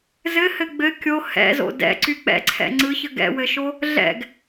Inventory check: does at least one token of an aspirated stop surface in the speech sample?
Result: yes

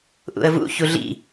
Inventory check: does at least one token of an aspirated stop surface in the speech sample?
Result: no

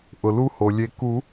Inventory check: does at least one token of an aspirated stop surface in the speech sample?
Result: no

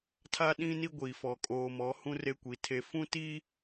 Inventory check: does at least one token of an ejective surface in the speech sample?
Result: yes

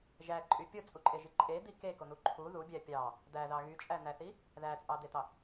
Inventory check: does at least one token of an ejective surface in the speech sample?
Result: yes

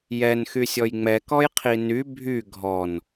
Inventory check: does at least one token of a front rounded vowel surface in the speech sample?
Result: yes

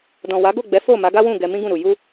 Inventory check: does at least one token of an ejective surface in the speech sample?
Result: no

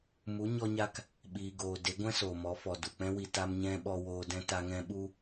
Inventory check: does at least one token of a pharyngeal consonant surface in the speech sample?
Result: no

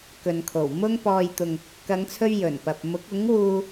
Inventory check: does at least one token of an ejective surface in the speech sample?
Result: no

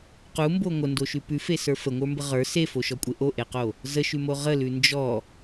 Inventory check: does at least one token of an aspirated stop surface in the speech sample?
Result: no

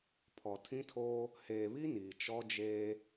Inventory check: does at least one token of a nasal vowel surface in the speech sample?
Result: yes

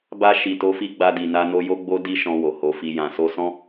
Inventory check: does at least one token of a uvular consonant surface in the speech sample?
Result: no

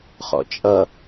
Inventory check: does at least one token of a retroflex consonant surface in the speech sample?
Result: no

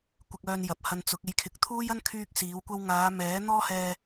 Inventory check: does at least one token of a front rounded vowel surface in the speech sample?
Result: yes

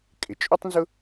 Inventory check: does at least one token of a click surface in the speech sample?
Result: no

